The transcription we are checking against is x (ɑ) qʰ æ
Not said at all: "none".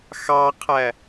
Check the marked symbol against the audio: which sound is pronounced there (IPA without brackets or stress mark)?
ɑ